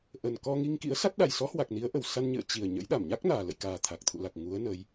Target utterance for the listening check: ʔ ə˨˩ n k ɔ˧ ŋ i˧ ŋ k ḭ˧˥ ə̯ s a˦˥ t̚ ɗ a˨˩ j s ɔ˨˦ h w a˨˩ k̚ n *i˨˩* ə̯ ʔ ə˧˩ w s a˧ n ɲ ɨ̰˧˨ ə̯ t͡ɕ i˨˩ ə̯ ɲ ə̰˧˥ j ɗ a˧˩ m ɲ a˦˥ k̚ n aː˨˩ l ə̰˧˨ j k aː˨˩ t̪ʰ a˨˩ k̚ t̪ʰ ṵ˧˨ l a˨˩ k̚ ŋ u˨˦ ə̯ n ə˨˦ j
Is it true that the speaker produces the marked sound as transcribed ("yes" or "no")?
no